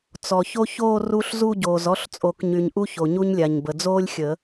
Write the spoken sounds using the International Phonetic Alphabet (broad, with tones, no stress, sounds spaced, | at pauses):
t͡s ɔ˨ ç o˥ ç oː˥˧ r u˥ ɬ z u˥˧ ɟ oː˨ z ɔ˥˧ ɬ t͡sʼ o˨˩˦ k ɲ y˨ ɲ ʔ u˥ ç o˨ ɲ u˥ ɲ lʲ a˨ ɲ b ə˨ d͡z oː˥ lʲ xʲ ə˨˩˦